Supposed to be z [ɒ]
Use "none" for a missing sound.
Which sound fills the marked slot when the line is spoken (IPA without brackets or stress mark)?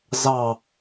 ɑ